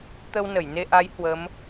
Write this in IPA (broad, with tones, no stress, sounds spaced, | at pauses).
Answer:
t̪ ə˧ w n ə˧˩ j n e˧ ʔ a˨˦ j h w ə˨˦ m